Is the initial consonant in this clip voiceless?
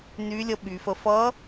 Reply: no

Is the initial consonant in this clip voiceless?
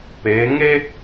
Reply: yes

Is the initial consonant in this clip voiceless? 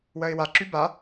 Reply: no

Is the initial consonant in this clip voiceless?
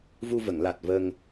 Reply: no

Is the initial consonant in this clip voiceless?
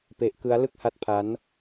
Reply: yes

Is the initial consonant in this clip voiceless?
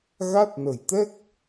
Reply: no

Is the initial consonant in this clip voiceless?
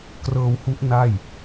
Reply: yes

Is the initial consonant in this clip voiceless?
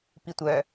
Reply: yes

